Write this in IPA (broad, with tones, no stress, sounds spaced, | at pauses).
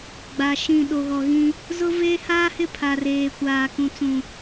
ɡ͡b a˨ ʃ ĩ˦˨ ɗ o˨ ɣ ɔ˨ ɣ ĩ˦ | z ʊ˦ v eː˦ h aː˦ h ɪ˦˨ pʰ a˨ r eː˨ kʷ aː˨ k ũ˨ t͡s ũ˨